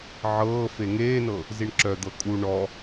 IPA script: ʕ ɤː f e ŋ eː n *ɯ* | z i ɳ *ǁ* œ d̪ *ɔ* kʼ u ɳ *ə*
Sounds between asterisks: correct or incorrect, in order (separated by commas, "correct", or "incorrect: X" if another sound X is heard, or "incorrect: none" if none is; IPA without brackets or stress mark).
incorrect: ɤ, correct, incorrect: ɤ, incorrect: ɔ